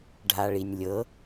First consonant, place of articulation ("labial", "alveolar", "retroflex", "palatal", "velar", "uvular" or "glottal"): retroflex